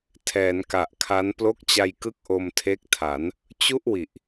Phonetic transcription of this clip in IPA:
tʰ ɛː˩˦ n k a˨˩ ʔ kʰ a˦˥ n p l o˦˥ k̚ t͡ɕ a˧ j k ɯ˦˥ k̚ ʔ o˧ m tʰ e˦˥ k̚ tʰ a˩˦ n | t͡ɕ u˥˩ ʔ w i˨˩ ʔ

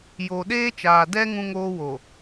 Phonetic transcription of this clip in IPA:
j o˨ ɗ eː˦ t͡ʃ aː˨ d ɛ˦ ŋ ũ˦ ŋ oː˦ w o˨

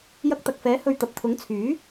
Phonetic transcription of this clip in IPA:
j ɐ˧ k̚ t̪ ɐ˨ k̚ f ɛː˨˥ h ɵ˧ ɥ t̪ ɐ˨ p̚ t̪ʰ ʊ˨˥ ŋ t͡sʰ yː˨˥

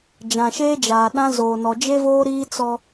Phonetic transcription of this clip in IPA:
d͡ʒ ã˨ ʃ eː˦ d͡ʒ aː˨ ɗ ã˦ z oː˨ n ɔ˨ d͡ʒ e˦ v oː˦ ɾ iː˦ t͡s ɔ˦

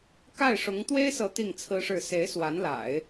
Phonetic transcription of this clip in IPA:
k a˥˩ ɪ̯ ʂ ʊ˧˥ ŋ t̪ w e˥ ɪ̯ s ɤ˧˥ t̪ i˥˩ ŋ t͡sʰ ɹ̩˥ ʂ ɻ̩˥˩ s e˧˥ ɪ̯ s w a˧˥ n l a̰˨˩˦ ɪ̯

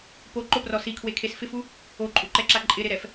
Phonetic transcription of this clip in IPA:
p o ǃ ʊ p r ɔ s i kʰ w e kʰ e s f ɪ f u | o ǃʼ u ǃ ɛ ǁ a ǃʼ ɪ ɾ ɪ ɾ ɛ f

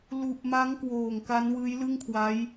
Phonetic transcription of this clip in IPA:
l u˨˩ ʔ m a˦˥ ŋ k w oː˨˩ ŋ k a˦˥ n w ɯː˦˥ j l ɯ˥˩ ŋ kʰ w a˦˥ j

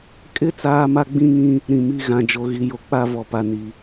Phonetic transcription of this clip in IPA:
kʼ ɪ˦ t͡s aː˦ m a˦ ɡ͡b ĩ˦ ŋ ĩ˦ | ɾ ĩ˨ m i˦ ɣ ã˨ d͡ʒ o˨ ɣ i˨ j o˨ k͡p a˦ v ɔ˨ p a˨ n i˨

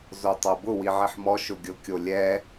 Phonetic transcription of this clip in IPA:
z o tˤ ɤ b ʊ w i ʕ i ħ m ɔ ʃ ʊ ɡʲ ʊ kʲ o lʲ ɛ

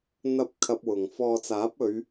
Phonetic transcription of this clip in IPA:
n̪ ɐ˧ p̚ kʰ ɐ˧ p̚ w ʊ˨ ŋ f ɔː˨ t͡s aː˨˥ p̚ ɵ˨˧ ɥ

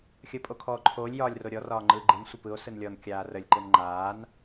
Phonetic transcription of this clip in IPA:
xʲ əː pʼ o kʰ ɔː ǃʰ oː lʲ j ɒː lʲ r o ɾʲ ɔ r ɒː ŋ͡ǃ ɯː ɡ͡ǃ ɯ n sʷ ə p ɯ o̯ s ɯ n lʲ ɔ n kʲ aː r ə lʲ ǃ ɯ n ŋ͡ǃ aː n

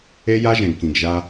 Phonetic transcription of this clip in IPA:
e˦ j a˦ ʒ ɛ̃˨ ɡ k ĩ˨ ɡ ʒ a˦

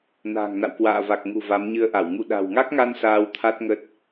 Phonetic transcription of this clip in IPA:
n a̤ː˨˩ ŋ n a̰˧˨ w k w a̰ː˧˨ v a˨˩ k̚ ŋ ṳ˨˩ v a˨˦ m ɲ ɨ˧ ə̯ ʔ a˧˩ w ŋ ṵ˧˨ ɗ a̤˨˩ w ŋ a˦˥ k̚ ŋ a˧ n s aː˧ w t̪ʰ a˦˥ t̚ ŋ ə˦˥ t̚

